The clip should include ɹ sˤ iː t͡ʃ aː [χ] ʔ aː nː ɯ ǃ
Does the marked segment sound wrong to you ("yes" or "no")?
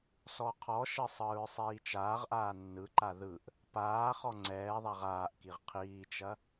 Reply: yes